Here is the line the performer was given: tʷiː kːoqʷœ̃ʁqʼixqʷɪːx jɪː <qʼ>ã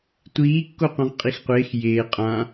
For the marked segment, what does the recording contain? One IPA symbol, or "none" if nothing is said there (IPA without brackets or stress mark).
qʼ